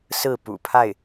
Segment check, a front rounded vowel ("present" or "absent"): absent